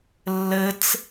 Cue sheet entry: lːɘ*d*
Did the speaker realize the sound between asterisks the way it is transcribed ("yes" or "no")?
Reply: no